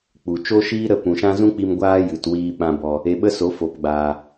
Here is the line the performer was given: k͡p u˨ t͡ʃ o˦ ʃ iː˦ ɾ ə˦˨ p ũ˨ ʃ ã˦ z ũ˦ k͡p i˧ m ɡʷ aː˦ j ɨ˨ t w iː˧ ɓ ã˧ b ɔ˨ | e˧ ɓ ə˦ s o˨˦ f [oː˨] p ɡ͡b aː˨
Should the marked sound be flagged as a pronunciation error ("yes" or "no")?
yes